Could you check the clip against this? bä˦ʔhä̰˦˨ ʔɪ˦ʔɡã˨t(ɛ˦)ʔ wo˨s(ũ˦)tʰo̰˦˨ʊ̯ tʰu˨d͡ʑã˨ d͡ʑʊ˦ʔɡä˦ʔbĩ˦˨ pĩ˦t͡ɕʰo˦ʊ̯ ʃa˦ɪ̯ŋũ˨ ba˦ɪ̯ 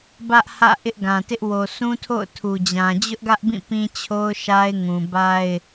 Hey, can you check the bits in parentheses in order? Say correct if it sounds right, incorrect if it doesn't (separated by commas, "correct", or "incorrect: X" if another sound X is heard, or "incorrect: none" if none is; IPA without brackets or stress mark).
incorrect: ɪ˦, correct